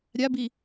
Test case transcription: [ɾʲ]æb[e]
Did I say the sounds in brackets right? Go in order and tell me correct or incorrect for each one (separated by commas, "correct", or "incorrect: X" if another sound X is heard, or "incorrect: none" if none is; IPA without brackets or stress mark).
correct, incorrect: i